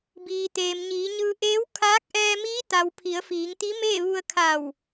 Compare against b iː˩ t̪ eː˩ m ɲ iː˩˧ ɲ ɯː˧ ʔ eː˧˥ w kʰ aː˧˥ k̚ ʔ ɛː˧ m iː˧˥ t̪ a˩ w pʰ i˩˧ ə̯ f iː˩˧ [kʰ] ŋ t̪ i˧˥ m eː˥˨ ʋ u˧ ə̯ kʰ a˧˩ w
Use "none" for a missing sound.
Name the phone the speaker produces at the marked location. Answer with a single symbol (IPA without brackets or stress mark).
none